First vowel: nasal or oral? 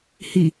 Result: oral